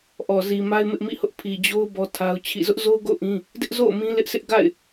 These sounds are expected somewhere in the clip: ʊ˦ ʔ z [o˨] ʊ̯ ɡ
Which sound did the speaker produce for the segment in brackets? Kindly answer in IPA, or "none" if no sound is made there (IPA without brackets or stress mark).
o˦